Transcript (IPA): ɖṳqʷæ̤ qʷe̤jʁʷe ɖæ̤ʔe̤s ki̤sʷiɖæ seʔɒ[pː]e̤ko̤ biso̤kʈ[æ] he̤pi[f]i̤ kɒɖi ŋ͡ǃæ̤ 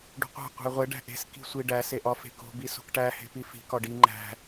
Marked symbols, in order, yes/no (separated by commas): no, yes, yes